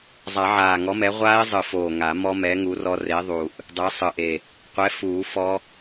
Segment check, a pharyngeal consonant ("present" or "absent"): present